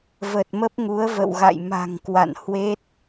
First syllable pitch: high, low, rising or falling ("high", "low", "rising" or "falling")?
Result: low